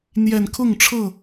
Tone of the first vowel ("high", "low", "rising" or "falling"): low